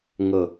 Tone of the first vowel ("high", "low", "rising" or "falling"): falling